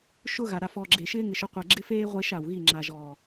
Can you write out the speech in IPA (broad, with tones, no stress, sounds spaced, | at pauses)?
ʃ ʊ˦ ɣ a˨ ɾ a˨ f ɔ˨ ɡ͡ǁ e˨ ʃ ɪː˦ ŋ ɪ˨ ʃ ʊ˦ qʷ ɛ˨ ɡ͡ǁ ɪ˦ f eː˦ ʁʷ e˦ ʃ a˨ w ɣ i˦˨ ŋ͡ǁ a˨ ʒ ɔː˨